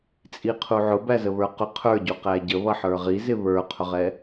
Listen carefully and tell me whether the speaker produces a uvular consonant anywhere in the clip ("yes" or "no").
yes